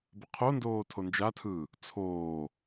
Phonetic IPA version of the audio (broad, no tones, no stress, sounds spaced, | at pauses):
b ə qʰ o n d oː tʰ o n d͡ʒ a tʰ ɯː | t͡sʰ oː